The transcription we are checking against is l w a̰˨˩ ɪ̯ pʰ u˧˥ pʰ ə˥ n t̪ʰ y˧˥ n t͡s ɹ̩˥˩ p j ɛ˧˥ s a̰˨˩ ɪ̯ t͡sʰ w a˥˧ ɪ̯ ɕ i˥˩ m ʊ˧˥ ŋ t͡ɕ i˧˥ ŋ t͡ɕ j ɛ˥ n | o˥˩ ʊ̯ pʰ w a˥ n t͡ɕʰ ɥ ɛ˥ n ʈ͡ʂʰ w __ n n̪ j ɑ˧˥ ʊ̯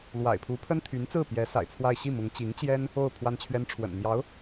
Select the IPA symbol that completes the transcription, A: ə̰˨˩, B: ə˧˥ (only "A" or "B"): A